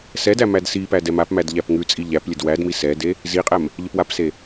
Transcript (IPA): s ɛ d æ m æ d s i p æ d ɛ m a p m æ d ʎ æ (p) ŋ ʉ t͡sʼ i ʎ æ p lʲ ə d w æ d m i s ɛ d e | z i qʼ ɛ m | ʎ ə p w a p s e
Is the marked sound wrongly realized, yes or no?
no